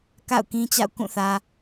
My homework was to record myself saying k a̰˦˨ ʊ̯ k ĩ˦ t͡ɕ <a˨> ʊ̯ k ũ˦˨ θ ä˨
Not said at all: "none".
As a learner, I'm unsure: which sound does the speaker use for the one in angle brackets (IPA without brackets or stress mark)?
a̰˦˨